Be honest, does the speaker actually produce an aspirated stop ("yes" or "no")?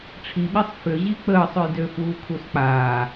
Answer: yes